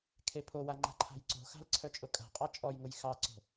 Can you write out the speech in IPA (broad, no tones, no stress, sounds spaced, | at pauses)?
kʰ e pʰ o w a ŋ͡ǃ a̤ ǃʰ a̤ j ǀ o̤ x a̤ l ǀʰ œ t͡ʃʼ ʊ kʼ a̤ qʼ ɑ t͡ʃʼ ɔ j ŋ ʊ j x ɑ ǀ o̤